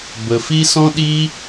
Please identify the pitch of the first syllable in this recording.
low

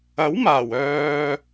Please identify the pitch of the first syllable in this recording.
rising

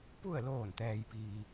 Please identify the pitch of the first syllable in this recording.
falling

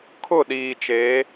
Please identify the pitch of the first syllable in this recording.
falling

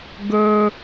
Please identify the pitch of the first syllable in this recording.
high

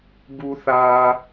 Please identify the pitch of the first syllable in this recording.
high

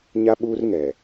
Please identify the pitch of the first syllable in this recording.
high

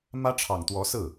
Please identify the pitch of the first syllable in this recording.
high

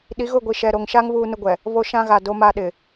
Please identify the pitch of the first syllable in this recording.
rising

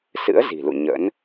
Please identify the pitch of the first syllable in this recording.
rising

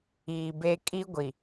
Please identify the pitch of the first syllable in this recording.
low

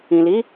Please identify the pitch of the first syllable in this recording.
low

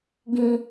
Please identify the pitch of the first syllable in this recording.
low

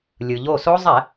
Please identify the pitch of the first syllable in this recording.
low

